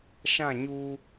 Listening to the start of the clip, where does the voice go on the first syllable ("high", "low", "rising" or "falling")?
falling